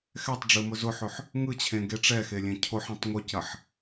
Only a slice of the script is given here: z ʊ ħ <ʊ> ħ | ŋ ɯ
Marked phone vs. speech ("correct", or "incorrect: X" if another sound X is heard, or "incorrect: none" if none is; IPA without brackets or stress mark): incorrect: ɵ